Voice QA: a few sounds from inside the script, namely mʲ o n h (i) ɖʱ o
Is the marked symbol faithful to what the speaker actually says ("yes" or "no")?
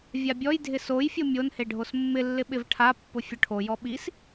no